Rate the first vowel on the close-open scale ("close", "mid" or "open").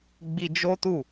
close